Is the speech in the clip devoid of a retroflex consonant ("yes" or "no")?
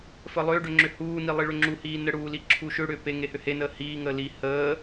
no